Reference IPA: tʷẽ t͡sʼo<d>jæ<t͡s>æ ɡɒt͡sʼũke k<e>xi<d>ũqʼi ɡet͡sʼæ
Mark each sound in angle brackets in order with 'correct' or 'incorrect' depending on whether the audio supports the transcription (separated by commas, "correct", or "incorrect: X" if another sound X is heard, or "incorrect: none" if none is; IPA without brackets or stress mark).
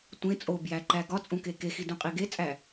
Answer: incorrect: b, incorrect: ǃ, correct, correct